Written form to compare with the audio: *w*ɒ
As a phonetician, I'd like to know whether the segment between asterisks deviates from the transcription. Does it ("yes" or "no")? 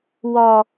no